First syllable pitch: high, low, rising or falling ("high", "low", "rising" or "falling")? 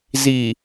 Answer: low